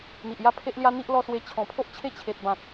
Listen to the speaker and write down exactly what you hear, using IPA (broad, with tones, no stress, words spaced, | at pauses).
n̪i˨ʔ ja˥˧pʰe˦ʔlja˦n̪i˦ʔ lɔ˧swe˧ t͡ɕʰɔ̃˨˩pʰo˦ʔ t͡ɕʰe˥˧t͡ɕʰe˨t̚bã˨k̚